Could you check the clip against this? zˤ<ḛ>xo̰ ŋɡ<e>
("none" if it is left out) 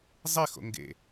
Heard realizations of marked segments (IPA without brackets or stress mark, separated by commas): e, ḛ